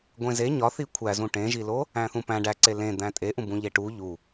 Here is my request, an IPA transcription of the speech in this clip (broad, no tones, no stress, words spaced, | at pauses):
ɡʷẽze ɲɒθi kʷʰæzũ ʈẽʒilo | æ̃θũpæ̃ ɖæǀe lẽ d̪æ̃tʼeʔũbũ ʎeʈu ʎu